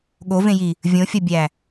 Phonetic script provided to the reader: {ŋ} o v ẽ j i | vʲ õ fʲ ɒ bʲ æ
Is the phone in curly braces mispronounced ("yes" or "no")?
yes